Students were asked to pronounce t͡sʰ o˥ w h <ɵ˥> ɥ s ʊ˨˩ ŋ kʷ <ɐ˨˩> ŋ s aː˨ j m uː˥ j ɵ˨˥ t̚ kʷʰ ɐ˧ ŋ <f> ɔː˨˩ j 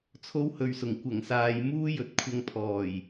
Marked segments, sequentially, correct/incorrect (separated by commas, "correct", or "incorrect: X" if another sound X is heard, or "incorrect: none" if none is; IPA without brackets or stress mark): incorrect: ɵ˧, correct, incorrect: pʰ